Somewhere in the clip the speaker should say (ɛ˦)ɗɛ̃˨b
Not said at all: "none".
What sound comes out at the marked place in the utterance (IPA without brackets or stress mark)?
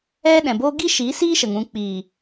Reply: ɛ˦